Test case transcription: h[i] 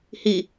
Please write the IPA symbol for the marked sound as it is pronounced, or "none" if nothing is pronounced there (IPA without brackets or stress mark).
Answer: i